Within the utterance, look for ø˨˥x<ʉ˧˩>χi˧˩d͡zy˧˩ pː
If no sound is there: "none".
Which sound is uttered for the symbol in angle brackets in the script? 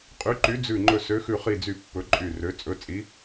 ʉ˧˩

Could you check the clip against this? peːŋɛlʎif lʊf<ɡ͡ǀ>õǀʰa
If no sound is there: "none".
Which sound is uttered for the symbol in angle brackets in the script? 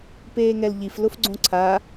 ɡ͡ǀ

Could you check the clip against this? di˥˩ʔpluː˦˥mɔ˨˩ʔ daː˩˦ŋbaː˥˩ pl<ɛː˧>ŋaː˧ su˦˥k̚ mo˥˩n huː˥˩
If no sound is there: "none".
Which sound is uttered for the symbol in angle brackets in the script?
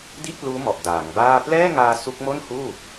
ɛː˥˩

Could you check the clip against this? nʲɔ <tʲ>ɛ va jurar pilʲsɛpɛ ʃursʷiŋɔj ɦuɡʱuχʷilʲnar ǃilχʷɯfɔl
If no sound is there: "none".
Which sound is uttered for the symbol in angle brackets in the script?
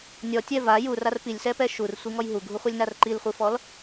tʲ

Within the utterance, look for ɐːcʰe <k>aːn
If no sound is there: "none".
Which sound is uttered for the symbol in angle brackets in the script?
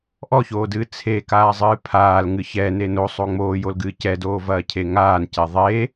ŋ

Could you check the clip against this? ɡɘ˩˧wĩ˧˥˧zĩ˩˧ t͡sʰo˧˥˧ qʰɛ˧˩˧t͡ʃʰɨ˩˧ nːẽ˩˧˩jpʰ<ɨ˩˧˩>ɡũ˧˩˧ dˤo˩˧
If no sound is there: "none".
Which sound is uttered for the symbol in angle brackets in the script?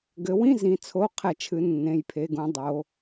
e˩˧˩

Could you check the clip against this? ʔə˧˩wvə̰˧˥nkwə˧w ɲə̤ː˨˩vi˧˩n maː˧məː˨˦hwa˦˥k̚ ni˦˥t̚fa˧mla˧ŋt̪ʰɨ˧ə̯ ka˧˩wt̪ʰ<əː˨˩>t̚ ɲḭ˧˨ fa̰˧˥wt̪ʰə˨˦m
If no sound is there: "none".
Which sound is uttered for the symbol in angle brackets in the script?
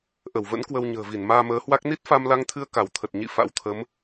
ə˨˩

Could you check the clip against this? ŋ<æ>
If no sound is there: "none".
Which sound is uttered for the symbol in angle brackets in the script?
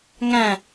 æ̃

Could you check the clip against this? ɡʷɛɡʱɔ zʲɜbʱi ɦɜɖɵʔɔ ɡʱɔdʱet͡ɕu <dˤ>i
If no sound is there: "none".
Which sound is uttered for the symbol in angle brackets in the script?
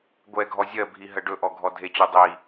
dˤ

